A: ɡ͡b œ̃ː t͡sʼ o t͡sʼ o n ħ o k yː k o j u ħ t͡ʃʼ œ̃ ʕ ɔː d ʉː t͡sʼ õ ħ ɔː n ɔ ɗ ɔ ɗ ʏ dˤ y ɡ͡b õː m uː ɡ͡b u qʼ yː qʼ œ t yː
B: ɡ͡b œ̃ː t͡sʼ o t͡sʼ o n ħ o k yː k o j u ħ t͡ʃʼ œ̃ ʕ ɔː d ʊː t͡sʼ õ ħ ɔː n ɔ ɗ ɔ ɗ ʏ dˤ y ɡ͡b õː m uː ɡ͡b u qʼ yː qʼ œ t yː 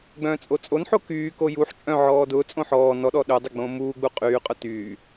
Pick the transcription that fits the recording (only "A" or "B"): B